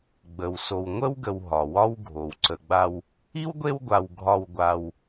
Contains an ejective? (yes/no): no